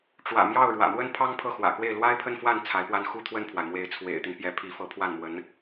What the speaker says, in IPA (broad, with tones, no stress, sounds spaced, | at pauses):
ʈ͡ʂ w ä̰˨˩ m j ɑ˥˩ ʊ̯ ɻ w ä̰˨˩ m w ə˥ n pʰ ɑ˥ ŋ pʰ ɤ˥˩ x w ä̰˨˩ k w e˥˩ ɪ̯ l w a˥ ɪ̯ pʰ ə˥˧ n f w a˥˩ n t͡sʰ a˧˥ ɪ̯ p w a˥˧ n x u˥˧ t̪ʰ w ə˥˩ n pʰ w a˩ ɪ̯ m w e˧˥ ɪ̯ t͡sʰ w ḛ˨˩ ɪ̯ t̪ i˦ n p j ɛ˧˥ pʰ i˧˥ f ɤ˧˥ pʰ w a˥˩ n m w ə˧˥ n